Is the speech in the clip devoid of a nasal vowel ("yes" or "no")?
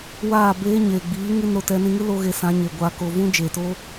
no